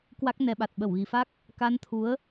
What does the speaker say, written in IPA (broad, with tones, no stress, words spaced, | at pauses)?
kwa˦˥k̚nɛ˧ɓa˨˩t̚ ɓə˧˩wɣi˨˩fa˦˥k̚ | ka˧nt̪ʰu˨˦ə̯